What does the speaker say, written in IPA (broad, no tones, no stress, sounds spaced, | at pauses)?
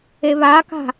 e β a k a̤